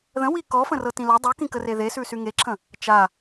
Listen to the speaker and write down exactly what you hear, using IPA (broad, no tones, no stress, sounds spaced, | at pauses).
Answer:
ð ə̃ w i k ɔ f ə̃ r ɤ t ĩ l ɤ dˤ u k ĩ k ə r e ð e s ʉ s y ŋ e ǁʰ ə̃ | t͡ʃ a